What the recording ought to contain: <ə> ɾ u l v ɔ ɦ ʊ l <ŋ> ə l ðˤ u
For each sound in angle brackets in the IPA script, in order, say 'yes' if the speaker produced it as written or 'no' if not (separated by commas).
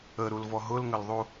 yes, yes